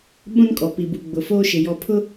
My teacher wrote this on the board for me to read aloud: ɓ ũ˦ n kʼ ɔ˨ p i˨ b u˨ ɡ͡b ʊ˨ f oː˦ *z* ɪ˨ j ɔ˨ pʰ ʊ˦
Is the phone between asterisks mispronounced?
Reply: yes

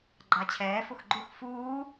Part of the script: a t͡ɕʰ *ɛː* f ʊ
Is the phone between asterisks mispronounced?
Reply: no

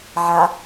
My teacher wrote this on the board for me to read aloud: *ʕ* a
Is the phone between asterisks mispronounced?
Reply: no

